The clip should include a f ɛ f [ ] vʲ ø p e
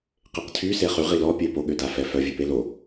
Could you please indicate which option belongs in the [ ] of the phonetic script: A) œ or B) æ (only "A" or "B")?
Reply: A